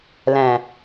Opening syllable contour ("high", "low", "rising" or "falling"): low